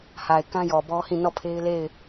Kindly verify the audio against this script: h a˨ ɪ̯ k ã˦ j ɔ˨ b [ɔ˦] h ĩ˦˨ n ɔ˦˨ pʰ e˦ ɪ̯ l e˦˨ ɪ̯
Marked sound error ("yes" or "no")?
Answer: no